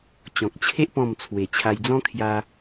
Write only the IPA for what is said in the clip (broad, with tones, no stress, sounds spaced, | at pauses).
t͡ɕ ɔ̃˨ k̚ t͡ɕʰ e˦ ʔ p ɔ̃˥˧ m t͡sʰ w e˨˩ t͡ɕʰ a˧ j d͡z ɔ̃˦ kʰ j a˧